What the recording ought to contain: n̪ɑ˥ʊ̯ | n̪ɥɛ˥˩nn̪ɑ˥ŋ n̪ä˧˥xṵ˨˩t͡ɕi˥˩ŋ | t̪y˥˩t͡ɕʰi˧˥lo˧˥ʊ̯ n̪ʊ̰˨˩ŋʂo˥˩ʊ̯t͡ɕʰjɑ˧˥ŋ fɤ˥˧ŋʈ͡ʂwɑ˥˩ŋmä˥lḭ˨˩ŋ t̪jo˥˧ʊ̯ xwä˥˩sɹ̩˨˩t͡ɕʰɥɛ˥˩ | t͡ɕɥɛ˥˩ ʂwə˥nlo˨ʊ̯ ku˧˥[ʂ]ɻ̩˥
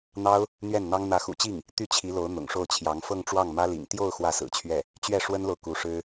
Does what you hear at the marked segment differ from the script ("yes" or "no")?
no